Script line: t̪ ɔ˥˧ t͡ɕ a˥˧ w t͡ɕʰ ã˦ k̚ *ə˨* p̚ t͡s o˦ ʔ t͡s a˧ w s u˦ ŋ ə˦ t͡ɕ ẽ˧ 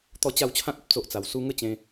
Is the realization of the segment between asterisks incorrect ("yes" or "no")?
no